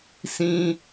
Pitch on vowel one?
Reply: high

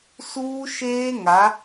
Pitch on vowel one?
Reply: high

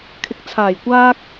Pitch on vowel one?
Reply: rising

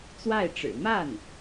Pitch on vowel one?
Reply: falling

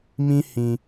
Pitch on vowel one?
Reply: high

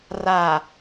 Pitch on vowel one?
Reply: low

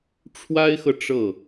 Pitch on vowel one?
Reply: high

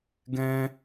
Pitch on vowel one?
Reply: high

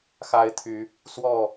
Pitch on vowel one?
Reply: rising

